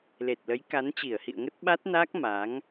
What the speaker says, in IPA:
l e˨˩ t̚ l ə˨˦ j k a˨˦ n t͡ɕ i˧˩ ə̯ h ḭ˧˨ ə̯ ŋ ə˦˥ t̚ ɓ a˦˥ t̚ n a˦˥ k̚ m a˨˦ ŋ

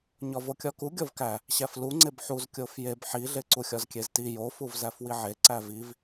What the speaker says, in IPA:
ɲ ɒ v o kʲ ɒ k u ɡʲ ɒ v k æ | ɕ æ f l u ŋ͡ǀ e b ħ u z kʲ o f j e b ħ i ɮ e ǀ u xʲ ɒ z kʲ e z t i j o f u v z æ f w i ʕ e ǀ æ v i v

